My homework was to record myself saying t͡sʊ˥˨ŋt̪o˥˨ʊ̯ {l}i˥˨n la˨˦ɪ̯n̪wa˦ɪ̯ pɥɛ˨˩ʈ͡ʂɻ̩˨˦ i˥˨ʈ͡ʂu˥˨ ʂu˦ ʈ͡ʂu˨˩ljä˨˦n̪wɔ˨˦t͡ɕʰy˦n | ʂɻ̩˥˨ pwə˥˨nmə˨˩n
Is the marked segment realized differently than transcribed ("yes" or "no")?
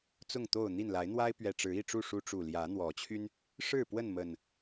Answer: yes